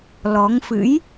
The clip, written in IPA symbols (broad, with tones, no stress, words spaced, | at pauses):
lɔ˨˦ŋfɨ̰˧˥j